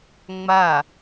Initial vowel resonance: oral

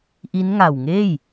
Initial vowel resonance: oral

